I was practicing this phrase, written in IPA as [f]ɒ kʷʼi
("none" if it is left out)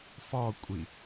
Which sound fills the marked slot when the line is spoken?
f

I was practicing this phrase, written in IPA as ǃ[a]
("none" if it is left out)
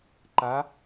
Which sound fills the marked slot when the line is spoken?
a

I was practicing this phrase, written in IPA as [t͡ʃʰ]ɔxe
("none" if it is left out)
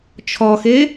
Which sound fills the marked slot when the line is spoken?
t͡ʃʰ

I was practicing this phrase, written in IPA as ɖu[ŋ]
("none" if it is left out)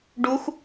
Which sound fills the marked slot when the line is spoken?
x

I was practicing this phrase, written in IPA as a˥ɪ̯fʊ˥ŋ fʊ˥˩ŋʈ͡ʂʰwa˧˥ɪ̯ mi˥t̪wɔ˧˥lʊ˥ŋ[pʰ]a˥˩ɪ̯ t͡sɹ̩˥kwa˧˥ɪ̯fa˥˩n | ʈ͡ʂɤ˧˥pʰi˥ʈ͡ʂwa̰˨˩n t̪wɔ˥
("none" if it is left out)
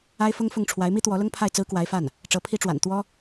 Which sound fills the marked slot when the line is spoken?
pʰ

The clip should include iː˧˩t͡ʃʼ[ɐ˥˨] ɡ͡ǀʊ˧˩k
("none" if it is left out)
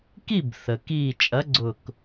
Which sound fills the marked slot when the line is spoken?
ɐ˨˥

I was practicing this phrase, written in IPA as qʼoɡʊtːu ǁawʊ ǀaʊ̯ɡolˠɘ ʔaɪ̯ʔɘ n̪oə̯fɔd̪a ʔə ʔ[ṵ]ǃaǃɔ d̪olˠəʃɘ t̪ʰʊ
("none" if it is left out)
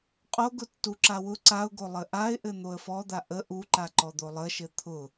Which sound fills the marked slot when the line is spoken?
u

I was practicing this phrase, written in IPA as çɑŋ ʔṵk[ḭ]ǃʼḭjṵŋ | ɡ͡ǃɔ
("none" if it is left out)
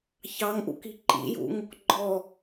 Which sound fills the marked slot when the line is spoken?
i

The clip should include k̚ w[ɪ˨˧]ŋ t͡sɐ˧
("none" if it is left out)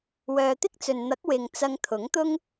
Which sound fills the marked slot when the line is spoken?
ɪ˨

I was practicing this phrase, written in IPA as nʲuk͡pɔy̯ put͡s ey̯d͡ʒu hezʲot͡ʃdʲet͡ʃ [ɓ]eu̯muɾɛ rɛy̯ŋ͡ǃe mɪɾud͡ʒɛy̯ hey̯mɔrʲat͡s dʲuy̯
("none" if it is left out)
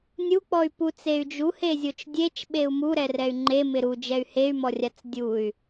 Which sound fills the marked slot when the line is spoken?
ɓ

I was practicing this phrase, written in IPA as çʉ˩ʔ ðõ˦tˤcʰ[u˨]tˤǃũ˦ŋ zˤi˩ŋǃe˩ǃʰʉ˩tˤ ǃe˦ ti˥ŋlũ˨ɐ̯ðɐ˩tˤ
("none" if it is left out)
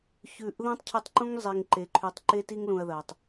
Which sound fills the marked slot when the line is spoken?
u˨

